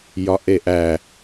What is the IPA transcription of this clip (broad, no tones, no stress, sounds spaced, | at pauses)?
j ɒ ʔ e ʔ æ